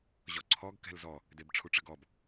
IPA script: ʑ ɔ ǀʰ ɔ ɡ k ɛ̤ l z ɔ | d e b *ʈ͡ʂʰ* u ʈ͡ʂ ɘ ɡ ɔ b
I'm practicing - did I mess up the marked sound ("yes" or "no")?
no